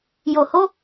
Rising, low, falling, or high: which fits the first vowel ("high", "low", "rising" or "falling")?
low